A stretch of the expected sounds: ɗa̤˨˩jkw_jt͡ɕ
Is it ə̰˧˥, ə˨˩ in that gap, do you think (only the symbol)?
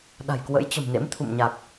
ə̰˧˥